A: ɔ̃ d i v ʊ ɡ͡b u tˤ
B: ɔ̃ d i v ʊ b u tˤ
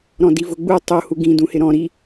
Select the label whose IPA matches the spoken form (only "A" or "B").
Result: A